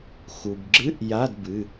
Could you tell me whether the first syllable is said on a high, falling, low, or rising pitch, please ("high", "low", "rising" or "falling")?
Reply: low